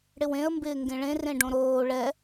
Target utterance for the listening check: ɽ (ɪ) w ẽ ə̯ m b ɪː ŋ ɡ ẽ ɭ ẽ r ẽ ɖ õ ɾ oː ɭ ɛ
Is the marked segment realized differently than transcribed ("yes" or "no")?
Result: no